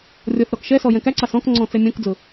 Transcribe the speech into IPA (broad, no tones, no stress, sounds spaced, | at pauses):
rʲ ɔ θ ɾ ɔ k ʃ ɛ s ɔ j ɛ̃ k æ ǀ ɑ s ɔ̃ k ŋ͡ǀ ɔ̃ t͡s ɛ mʲ ɔ̃ k d͡z ʊ